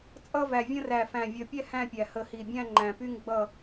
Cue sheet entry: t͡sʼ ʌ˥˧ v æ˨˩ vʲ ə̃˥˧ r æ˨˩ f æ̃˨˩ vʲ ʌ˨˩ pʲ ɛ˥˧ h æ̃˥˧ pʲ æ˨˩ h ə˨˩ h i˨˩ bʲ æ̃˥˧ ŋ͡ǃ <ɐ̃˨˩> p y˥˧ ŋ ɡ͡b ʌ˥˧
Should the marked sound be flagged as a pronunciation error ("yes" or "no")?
yes